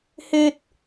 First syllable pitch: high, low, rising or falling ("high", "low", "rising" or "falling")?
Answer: high